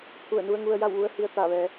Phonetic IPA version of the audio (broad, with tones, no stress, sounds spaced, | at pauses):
pʰ u˧˩ ə̯ n u˧ ə̯ ŋ u˧ ə̯ j a˥˨ w ʋ u˧ ə̯ h i˧ ə̯ t̪ a˧˩ ʋ ɛː˩˧